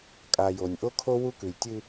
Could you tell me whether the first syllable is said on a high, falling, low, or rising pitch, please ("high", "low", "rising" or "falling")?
low